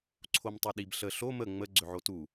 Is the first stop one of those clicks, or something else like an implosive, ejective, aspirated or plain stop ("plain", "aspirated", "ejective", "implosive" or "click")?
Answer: click